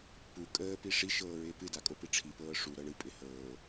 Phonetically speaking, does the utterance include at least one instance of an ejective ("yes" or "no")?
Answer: yes